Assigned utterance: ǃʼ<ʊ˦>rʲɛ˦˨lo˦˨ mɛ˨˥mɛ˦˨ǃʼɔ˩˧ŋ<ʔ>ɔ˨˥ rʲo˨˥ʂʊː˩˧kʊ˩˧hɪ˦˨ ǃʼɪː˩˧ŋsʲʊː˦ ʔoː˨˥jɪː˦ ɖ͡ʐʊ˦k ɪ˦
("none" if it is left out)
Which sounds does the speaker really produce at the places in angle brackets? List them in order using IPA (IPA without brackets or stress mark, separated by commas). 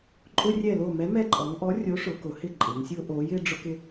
ʊ˦, ʔ